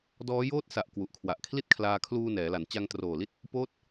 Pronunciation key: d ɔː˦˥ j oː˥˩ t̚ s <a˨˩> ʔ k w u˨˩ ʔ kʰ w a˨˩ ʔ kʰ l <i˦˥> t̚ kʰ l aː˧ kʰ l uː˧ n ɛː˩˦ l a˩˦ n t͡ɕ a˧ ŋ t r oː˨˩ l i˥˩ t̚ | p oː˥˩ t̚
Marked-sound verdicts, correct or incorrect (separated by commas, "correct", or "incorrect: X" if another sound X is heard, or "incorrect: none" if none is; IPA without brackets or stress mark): correct, incorrect: i˥˩